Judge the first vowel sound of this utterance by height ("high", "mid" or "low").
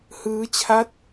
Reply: high